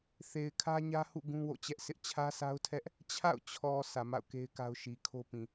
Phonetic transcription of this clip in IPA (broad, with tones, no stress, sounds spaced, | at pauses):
θ e˨ ɪ̯ kʰ ä˦ ɲ ä˦ h ṵ˦˨ ɡ ũ˦ w o̰˦˨ t͡ɕ ɛ˦ ʔ s ɪ˦ ʔ t͡ɕʰ ä˦ s a˦ ʊ̯ tʰ ɛ˦ ʔ | t͡ɕʰ a̰˦˨ ʊ̯ t͡ɕʰ ɔ˨ s ä˨ m a̰˦˨ ʊ̯ k e˦ ɪ̯ k a˦ ʊ̯ ʃ i˨ kʰ o˦ p ĩ˨